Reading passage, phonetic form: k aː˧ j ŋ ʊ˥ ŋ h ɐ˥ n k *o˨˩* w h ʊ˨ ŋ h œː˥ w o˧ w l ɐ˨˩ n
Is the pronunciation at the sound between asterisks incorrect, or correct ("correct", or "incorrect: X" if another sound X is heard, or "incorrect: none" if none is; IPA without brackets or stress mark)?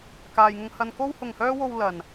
incorrect: o˥